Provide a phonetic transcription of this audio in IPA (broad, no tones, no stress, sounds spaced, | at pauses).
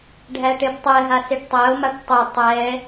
ɖʱ æ ʈ e b tˤ ɛ ɦ a s e ʈ tˤ æ o̯ m a ʈ tˤ æ tˤ ɛ